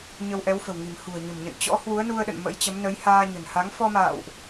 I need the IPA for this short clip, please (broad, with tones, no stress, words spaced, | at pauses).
ɲə˧wʔɛ˨˦wfə̤˨˩wŋi̤˨˩m hṳ˨˩ə̯ɲə̤˨˩mɲə̰˧˨n t͡ɕɔ̰˧˥ hwu˨˦ə̯nu˧ə̯ɗə̰˧˨n mə̰˧˥jt͡ɕə˨˦mnə˨˦j haː˧ɲə̤˨˩nha˨˦ŋ fɔ˧ma̰ː˧˨wʔ